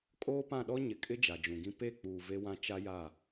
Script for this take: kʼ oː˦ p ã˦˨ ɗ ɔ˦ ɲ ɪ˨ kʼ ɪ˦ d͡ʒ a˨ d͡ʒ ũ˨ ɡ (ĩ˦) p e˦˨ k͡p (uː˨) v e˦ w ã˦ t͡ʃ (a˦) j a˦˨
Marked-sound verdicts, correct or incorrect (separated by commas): correct, correct, correct